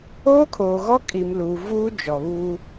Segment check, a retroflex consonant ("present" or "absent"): absent